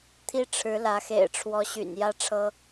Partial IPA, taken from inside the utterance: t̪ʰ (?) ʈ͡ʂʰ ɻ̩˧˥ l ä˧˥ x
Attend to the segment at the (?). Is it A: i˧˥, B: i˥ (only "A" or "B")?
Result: B